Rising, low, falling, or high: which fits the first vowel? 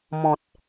low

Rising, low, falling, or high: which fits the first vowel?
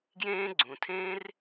high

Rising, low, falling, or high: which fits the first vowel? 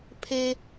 low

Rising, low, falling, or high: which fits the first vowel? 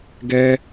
high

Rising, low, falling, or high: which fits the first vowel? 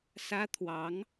high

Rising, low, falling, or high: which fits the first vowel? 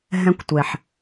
high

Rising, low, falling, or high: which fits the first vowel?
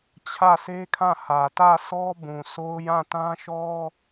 falling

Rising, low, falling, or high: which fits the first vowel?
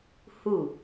falling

